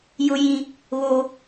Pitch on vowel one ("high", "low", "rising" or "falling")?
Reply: high